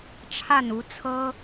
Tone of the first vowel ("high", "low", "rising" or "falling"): falling